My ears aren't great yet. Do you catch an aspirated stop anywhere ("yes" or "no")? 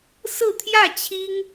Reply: yes